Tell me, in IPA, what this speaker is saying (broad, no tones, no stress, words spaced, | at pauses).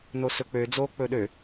nosɵk͡pød͡zoː k͡pɵɗø